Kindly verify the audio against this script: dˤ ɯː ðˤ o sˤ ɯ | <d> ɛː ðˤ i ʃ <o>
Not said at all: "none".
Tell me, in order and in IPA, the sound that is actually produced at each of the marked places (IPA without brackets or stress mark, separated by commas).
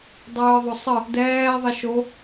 d, o